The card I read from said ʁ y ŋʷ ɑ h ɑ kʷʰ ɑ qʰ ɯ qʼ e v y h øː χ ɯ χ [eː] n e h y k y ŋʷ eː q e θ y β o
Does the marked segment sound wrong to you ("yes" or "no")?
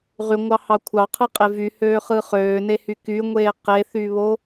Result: yes